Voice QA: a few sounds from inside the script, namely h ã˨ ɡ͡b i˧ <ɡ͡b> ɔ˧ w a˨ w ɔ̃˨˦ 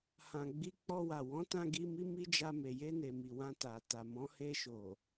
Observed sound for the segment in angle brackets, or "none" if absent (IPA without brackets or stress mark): k͡p